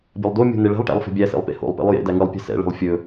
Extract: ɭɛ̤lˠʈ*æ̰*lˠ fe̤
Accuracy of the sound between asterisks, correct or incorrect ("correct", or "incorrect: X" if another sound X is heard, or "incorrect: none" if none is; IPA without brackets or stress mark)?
correct